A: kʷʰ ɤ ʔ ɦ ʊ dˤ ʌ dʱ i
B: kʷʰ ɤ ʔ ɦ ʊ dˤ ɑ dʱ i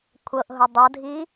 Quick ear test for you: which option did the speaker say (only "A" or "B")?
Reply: A